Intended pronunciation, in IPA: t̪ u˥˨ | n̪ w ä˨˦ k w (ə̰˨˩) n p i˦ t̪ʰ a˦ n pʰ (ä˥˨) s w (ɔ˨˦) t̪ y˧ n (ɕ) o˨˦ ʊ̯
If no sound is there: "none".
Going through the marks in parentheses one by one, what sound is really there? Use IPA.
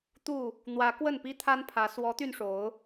ə˥˨, ä˨˦, ɔ˨˦, ʂ

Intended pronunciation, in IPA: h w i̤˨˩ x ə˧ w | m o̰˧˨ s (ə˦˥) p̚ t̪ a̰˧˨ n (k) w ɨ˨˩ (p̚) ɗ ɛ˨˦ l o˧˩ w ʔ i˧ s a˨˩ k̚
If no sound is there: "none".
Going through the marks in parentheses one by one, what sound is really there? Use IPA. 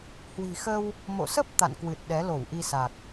ə˦˥, k, t̚

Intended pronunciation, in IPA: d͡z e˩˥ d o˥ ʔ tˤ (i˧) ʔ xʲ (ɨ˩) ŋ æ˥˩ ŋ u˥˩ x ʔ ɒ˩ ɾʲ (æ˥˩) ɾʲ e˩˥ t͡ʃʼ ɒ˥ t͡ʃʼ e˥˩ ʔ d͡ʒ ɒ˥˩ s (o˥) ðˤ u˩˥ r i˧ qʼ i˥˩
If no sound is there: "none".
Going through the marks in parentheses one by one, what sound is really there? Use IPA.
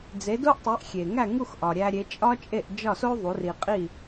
i˩˥, e˩, æ˧, o˥

